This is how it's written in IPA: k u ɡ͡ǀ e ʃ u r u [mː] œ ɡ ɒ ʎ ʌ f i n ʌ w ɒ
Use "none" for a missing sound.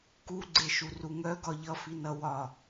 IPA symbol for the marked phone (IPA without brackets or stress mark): ŋ